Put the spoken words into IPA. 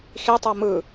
x i tˤ o m ɯ

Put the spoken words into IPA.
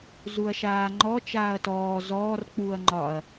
z u ɐ̯ ʃ aː ŋ͡ǃ ɔ t͡ʃ aː ɐ̯ t ɔː z ɔː r k͡p uː ɐ̯ ŋ͡ǃ ɒ ɐ̯

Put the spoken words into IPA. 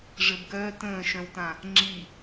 ʐ ɘ b ɡ œː t ə̃ː ʃ œ̃ w t ã | ŋ͡ǁ i

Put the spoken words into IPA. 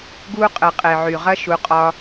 ɡ u˦ qʼ ɘ˨ qʼ e˨ ʕ y˨ ʁ ɐ˦ ʃ u˨˦ qʼ ɒ˦

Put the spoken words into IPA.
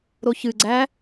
ɾ o ç ɨ ɡ͡ǀ æ

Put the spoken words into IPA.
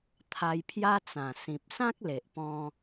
t̪ʰ a˧ j pʰ j a˦ t͡s ã˨˩ s ĩ˨ p̚ s ã˦ k̚ l e˨ ʔ p ɔ̃˧

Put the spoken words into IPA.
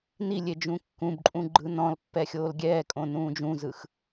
n i lʲ e d͡ʒ ũ kː ũ b ǃʼ ũ ɡ͡ǃ ɯ n ɔ̃ l pː ɛ xʲ oː l ɡʲ ɛː kʼ õ n ũː d͡ʒ ũ z ɯ x

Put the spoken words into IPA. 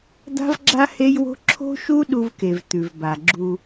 d̪ a̤˦ v ɡ͡ǁ a˦ h e˦ j w o̤˦ ǁʰ o̤˦ ʃ u˦ ɗ u˦ v k e˨ v t̪ ʉ˨ v b a˨ ɡ͡ǁ u˦

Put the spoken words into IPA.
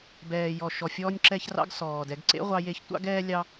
b ɛː˨ j ɔ˨ ʃ ɔ˨ fʲ ɔː˧ nʲ ǁ ɛ˧ ç r ɑ̰˧ ɡ s ɔː˨ d ɛ˨˦ ɡ ǀ ḛ˦ ʁʷ ɑ˧ j e˧ ç tʷ ɑ̰˦ ɡ ɛː˦ lʲ ɑ˦

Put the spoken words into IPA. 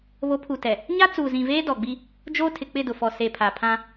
β o˨˦ pʰ u˨ t ɛ˨ | ɲ a˦ t͡s uː˨ z ĩ˨ v eː˦ d ɔ˨ ɡ͡b i˦ | d͡ʒ oː˦ tʰ ɪ˨ k͡p ɪ˦˨ d ʊ˨ f ɔ˨ s e˨ pʰ a˨ pʰ ã˦

